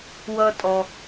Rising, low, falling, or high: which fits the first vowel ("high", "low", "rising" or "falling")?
high